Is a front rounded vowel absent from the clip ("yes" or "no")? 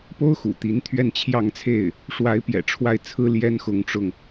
yes